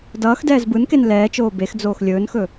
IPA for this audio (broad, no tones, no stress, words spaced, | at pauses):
dʌːxdɛːz bɯnken lɛːt͡ʃoː bexd͡zoːx lʲɵːnxɵ